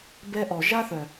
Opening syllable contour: high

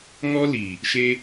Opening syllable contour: high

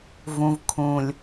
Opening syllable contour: low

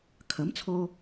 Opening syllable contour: rising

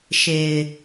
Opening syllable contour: low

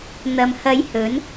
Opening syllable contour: low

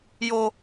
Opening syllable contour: high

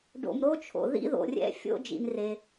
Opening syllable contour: low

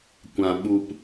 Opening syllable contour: low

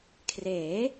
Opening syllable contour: rising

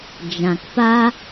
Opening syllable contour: low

